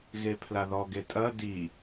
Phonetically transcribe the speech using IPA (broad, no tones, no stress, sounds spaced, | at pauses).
ɣ e pʰ l a ð ɔ ɡ e tʼ ɐ d i